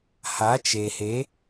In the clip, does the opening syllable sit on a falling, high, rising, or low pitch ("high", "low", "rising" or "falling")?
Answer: rising